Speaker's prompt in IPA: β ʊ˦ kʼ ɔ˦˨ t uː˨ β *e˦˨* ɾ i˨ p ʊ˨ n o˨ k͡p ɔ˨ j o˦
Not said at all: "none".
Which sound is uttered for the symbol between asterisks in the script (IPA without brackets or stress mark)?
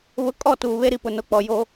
e˦